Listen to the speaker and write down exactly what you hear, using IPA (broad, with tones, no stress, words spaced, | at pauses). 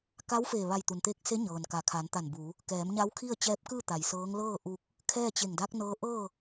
ka˧˥wfeː˧˩ ʋa˧˩jt̪u˩nt̪eː˧˥k̚se˧˥ ɲɤː˩nka˩˧kʰa˩˧n t̪a˧˩nbu˩˧ | kɛː˩˧mɲa˧˥w kʰi˥˨ə̯t͡ɕɛː˧˥p̚kɯː˥˨t̪a˩j sɤː˧˥ŋ lɤː˥˨ʔu˧k̚ | kʰɛː˥˨t͡ɕe˧˩ŋ da˧˥k̚nɤː˧˥ʔɤː˥˨